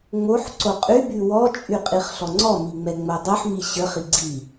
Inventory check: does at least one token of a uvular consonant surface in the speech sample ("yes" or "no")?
yes